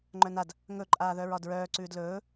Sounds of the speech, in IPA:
ŋ͡ǃ œ n a d | ŋ ɵ ǃʼ aː ð œ ɹ ɒ d ɹ œː ǀ ʉː d l ɵː

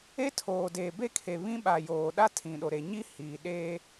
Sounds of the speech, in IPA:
e˦ tʰ oː˨ d eː˨ b e˦˨ kʰ e˨ β ĩ˦ ɓ a˨ j oː˨ ɗ a˦ tʰ ĩ˨ ɗ o˨ ɾ e˨ ɲ i˦ h i˨ ɗ eː˦

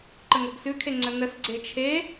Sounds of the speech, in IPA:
ǃ ə ŋ o ɡ s ʉ kʰ e ŋ͡ǀ ə n ə s ɡ͡ǀ e t͡ʃʰ e

